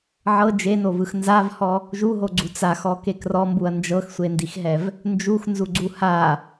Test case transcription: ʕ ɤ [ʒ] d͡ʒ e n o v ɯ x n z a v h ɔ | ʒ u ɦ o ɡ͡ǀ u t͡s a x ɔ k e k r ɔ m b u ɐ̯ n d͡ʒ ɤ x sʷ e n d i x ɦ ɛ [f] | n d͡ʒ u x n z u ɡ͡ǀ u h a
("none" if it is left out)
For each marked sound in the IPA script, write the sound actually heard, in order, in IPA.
none, v

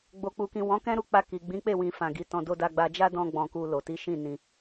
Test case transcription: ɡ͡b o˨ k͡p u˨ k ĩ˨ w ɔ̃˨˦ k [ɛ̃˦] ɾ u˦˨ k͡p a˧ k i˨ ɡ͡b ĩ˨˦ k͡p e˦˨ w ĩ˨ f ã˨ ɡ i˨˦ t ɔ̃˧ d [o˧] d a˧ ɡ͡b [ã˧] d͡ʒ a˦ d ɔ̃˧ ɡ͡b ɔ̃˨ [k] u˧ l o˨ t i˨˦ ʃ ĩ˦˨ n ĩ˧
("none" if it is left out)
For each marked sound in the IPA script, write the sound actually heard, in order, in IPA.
ɛ̃˦, o˧, a˧, k

